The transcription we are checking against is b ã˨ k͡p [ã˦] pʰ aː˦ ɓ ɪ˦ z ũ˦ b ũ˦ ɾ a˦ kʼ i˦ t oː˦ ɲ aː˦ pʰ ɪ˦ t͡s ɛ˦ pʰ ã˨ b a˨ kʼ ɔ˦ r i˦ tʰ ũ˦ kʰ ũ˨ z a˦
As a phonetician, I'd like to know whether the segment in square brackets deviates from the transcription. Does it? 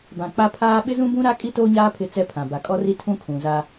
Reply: yes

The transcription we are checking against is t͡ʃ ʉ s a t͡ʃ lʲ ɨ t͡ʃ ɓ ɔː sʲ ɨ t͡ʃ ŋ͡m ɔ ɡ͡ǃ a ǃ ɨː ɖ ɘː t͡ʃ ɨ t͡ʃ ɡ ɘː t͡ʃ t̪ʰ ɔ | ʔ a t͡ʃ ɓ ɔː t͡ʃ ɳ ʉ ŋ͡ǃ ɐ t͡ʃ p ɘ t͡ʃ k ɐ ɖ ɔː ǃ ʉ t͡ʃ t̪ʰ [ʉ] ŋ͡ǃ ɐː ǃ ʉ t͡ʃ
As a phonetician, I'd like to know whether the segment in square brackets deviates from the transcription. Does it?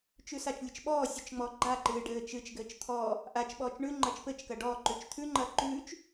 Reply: no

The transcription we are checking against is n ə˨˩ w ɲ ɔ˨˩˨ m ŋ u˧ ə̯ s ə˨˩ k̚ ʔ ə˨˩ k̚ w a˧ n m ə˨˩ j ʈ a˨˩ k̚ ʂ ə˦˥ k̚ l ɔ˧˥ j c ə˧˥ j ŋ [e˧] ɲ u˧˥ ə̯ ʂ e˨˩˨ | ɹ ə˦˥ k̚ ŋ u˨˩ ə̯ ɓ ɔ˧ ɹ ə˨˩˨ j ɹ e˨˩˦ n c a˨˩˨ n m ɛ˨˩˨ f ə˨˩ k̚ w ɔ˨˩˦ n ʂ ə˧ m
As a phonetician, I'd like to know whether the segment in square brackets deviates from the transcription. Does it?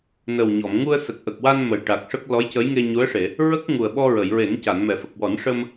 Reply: no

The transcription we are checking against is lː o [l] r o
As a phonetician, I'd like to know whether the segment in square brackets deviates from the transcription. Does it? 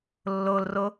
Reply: no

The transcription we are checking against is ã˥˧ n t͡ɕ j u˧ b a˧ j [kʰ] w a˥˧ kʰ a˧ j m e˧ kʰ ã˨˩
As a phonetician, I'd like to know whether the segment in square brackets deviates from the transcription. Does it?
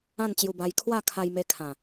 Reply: no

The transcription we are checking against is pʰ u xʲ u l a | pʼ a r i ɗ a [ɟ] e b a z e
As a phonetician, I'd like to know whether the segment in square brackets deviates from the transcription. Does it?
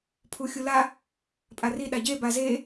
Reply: no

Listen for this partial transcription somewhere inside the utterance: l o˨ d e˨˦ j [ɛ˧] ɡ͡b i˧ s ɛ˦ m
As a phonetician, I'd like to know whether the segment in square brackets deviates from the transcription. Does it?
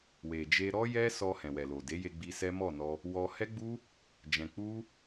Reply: yes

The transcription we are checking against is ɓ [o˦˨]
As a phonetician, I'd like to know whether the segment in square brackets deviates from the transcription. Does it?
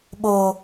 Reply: yes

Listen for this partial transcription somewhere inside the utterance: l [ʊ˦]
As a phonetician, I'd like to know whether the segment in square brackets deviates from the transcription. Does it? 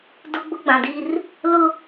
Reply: no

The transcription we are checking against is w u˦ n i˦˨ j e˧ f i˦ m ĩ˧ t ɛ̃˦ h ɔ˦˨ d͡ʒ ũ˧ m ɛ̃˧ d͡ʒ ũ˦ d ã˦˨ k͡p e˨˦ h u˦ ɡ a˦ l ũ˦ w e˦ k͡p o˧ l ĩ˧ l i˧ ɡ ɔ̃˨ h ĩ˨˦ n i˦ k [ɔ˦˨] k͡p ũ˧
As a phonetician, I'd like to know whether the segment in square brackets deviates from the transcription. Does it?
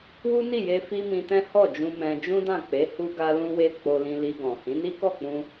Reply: no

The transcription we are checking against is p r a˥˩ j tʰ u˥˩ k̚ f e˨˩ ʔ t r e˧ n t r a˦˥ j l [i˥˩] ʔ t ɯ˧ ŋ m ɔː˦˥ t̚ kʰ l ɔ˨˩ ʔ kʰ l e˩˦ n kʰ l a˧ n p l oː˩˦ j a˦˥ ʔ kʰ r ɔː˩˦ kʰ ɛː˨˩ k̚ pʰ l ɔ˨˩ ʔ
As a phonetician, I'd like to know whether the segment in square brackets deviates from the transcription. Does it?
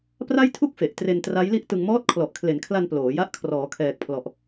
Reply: no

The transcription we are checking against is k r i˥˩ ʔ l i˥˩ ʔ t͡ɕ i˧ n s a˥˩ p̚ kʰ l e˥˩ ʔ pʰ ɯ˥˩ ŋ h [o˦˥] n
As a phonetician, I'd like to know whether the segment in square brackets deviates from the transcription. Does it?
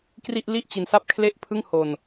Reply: yes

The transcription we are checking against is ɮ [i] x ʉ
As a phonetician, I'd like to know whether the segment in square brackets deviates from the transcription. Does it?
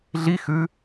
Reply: no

